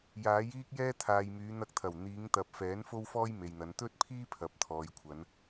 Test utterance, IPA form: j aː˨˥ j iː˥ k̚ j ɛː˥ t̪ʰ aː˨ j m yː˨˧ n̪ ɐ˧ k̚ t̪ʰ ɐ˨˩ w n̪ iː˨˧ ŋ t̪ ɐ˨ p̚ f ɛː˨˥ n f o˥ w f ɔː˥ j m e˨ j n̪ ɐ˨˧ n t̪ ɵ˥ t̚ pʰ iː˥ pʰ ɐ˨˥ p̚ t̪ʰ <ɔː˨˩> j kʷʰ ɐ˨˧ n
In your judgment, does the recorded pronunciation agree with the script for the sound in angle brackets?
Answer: no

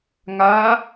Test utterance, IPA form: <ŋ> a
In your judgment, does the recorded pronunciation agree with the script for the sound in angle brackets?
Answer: yes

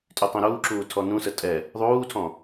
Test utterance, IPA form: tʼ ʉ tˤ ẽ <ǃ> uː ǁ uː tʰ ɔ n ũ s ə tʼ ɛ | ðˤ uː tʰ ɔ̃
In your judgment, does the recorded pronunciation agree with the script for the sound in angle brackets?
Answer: no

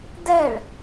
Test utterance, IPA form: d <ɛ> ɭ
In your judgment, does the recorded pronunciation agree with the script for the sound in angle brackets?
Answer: yes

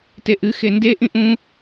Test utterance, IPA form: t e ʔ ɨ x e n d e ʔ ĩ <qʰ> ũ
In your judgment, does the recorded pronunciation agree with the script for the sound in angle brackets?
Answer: no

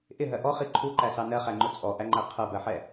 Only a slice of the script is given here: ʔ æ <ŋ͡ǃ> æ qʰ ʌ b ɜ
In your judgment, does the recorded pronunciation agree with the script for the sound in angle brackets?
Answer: yes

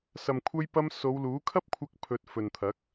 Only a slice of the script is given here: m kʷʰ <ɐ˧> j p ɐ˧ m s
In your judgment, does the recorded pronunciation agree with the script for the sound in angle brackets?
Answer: yes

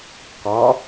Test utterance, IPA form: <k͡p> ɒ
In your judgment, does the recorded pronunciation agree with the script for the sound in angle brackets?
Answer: no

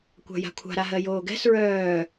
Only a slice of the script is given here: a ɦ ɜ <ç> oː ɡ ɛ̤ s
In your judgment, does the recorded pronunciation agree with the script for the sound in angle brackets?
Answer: no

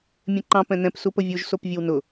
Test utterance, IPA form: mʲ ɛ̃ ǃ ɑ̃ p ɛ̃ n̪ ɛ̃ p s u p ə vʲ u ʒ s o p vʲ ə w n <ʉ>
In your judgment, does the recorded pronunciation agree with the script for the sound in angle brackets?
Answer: no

